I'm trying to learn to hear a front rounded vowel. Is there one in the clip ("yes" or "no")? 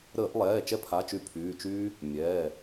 yes